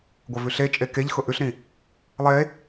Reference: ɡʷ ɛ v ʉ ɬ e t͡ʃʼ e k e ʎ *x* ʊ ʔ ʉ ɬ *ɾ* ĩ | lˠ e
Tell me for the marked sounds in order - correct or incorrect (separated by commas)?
correct, correct